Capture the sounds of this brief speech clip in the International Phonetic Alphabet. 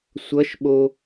sʷ ʌ ʃ ɓ o

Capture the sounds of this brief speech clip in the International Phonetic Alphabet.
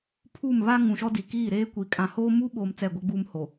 pʰ u˦˨ m β a˦ ŋ ũ˨ ʃ ɔ˦ d i˨ k iː˦˨ ɾ eː˦ kʷ i˨ kʼ ã˨ h oː˦ m u˦ ɓ oː˨ m t͡s ɛ˦˨ ɡʷ ɛ˦ ɡ͡b uː˦ m h o˨

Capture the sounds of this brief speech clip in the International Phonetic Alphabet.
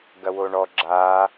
ɡ ɐ w o ɳ ɔ ɡ͡ǁ a

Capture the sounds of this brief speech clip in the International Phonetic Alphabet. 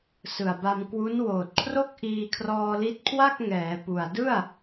s ɯ˨˩ a̯ b a˧ m k w u˦˥ n w oː˨˩ t̚ kʰ r o˥˩ k̚ ʔ iː˧ kʰ r ɔː˧ l i˦˥ t̚ kʰ w a˥˩ k̚ ŋ ɛː˩˦ p u˨˩ a̯ d ɯ˥˩ a̯

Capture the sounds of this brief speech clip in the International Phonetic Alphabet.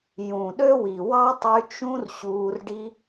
j ũ˨ ɗ ø˦ w i˨ w ɑ˦ tˤ y˧ t͡ʃ ũ˦ r ɕ uː˧ r ɖ i˦

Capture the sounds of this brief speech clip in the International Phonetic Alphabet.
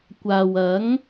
kʷ aː˨ w ɐ˨˥ ŋ

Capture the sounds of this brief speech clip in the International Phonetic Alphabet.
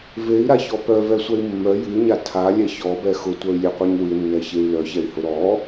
v e i̯ ɾ a ç ɔ p œ v ɛ sʷ ɛ i̯ mː œ j ɨ y̯ ɲ a tʰ a lʲ ɛ ç ɔ b ɛ x ʊ tʷ œ y̯ lʲ ɛ qʷ ɛ ɲ w ɨ nː ɛ ç e y̯ l œ ç ɛ i̯ h ʊ ɾ ɔ

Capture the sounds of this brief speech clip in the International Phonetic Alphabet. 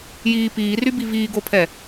j iː p iː r y b i v iː ɡ o pʰ ɛ

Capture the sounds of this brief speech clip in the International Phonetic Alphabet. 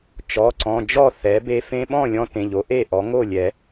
t͡ʃ ɔ˩˧˩ ǀ ɔ̃˩˧˩ d͡ʒ ɔ˥˩ θ ɛ˩˥ b e˧ f ẽ˧ ɓ ɔ̃˥˩ lʲ ɔ̃˧ t ẽ˩˧˩ ʎ o˩˥ ʔ e˥˩ ʔ ɔ˩˥ ŋ o˥˩ lʲ ɛ˨˩˦

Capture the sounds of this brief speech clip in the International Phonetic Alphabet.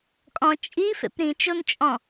kʼ ɔ̃ t͡ʃʼ i f ḛ p ɾ ĩ t͡ʃ o n t͡ʃʼ ɔ̃

